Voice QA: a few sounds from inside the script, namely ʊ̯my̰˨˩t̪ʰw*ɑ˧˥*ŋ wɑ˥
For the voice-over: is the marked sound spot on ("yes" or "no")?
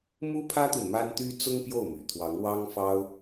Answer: yes